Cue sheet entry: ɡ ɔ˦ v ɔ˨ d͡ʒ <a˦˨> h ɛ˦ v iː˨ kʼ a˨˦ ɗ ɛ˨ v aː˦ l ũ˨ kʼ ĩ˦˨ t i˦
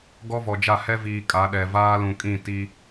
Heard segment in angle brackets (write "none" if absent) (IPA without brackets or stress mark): a˦˨